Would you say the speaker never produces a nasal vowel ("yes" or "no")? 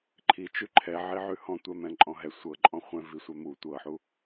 no